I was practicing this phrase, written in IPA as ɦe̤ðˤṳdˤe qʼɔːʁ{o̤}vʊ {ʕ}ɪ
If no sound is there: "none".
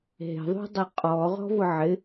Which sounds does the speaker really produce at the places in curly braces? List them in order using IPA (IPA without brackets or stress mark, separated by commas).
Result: ɔ̤, ʕ